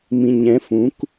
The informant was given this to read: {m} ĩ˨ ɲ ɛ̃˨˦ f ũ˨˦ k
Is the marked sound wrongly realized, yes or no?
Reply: no